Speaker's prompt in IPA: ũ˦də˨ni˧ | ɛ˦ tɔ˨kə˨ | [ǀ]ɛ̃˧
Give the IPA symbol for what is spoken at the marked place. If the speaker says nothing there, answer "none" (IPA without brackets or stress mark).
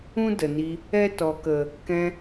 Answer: k